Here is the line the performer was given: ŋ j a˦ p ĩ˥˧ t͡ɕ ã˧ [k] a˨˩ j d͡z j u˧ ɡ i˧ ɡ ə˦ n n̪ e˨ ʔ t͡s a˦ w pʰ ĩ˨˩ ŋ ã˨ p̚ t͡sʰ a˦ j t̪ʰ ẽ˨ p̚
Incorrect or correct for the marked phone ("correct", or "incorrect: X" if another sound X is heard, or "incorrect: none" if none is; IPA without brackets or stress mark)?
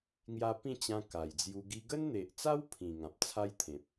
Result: correct